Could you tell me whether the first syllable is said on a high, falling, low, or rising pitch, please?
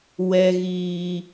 low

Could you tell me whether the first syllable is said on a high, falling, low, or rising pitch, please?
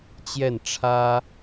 falling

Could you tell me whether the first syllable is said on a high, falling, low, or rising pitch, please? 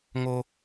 high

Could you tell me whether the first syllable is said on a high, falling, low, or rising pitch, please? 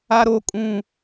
high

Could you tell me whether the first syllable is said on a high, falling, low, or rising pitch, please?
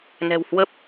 low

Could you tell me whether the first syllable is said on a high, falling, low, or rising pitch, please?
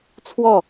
falling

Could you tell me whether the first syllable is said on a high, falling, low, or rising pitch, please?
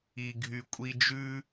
low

